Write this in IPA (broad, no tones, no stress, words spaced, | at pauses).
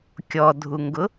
kʲɔdʱuŋɡʊ